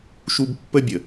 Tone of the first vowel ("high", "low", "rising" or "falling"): high